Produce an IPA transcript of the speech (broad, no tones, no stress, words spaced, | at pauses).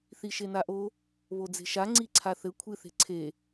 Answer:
θiʃenaʔo | βod͡ze̤ʃa ŋ͡ǀiǀʰaθɘ kʷʰɨ θe̤ǀʰe